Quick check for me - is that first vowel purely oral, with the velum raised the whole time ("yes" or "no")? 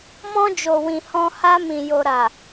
no